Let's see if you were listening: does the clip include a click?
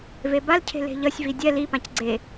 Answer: yes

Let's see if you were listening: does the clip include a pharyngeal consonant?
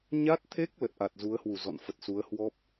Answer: no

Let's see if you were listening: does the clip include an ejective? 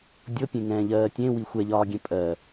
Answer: yes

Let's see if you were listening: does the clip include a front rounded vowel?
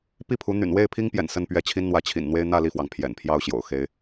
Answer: yes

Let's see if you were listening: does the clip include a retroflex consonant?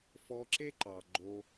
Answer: no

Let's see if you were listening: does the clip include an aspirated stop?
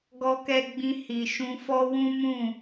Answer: no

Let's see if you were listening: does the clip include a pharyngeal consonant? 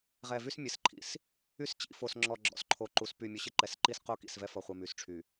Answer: no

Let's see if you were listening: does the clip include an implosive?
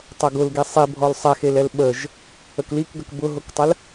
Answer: yes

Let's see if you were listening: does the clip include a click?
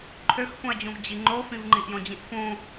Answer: yes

